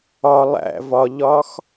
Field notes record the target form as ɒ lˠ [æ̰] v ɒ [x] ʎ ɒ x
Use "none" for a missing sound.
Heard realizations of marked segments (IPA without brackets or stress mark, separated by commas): æ̰, none